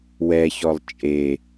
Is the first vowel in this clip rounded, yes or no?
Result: no